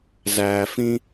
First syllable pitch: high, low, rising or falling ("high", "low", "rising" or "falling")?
low